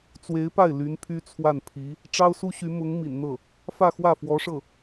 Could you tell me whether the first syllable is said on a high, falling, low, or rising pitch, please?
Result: rising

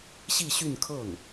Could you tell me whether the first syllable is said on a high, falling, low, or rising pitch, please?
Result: falling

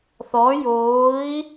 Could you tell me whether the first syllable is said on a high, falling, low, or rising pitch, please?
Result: rising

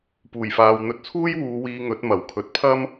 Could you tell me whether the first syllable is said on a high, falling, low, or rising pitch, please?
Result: low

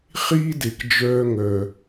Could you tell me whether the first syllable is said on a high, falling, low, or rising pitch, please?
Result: high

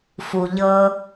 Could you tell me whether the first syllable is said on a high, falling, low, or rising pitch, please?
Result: low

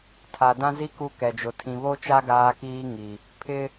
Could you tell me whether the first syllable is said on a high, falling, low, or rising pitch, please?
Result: low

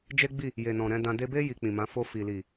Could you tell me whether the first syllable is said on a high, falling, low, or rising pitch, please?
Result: high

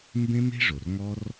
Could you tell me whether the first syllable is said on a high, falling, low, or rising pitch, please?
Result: high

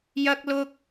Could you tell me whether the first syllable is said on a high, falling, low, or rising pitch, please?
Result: high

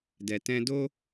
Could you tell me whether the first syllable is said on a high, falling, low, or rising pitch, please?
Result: low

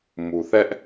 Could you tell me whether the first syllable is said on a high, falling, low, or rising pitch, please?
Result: low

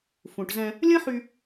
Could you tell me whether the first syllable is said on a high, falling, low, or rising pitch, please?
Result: low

